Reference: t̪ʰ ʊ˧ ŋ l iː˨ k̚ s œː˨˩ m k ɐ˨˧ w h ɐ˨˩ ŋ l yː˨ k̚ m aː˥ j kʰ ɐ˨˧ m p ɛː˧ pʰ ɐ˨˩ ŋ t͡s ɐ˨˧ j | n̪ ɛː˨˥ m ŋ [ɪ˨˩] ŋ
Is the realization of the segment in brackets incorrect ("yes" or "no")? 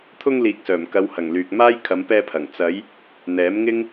yes